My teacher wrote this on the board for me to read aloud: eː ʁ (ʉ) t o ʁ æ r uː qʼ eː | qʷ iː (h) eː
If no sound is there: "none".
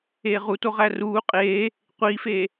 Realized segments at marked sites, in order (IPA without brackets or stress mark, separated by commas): u, f